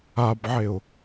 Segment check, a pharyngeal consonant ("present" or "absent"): present